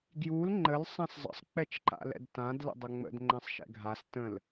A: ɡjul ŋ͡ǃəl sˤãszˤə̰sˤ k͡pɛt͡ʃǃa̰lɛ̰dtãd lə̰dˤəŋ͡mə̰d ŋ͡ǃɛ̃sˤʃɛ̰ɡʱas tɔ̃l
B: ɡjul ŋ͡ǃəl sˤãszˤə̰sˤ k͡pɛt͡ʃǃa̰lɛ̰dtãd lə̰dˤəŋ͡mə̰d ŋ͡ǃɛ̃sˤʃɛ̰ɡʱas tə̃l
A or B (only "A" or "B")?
B